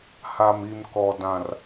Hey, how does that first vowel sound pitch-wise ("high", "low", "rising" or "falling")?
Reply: low